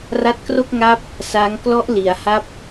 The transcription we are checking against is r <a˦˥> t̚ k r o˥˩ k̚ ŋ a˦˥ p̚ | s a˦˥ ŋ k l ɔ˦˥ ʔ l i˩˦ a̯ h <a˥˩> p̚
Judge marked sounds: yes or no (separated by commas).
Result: yes, yes